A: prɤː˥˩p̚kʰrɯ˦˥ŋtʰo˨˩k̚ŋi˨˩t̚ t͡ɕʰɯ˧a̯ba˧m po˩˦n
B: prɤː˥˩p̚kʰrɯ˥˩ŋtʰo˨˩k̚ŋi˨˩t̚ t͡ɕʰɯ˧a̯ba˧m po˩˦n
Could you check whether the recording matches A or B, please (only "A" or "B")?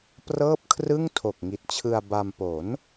B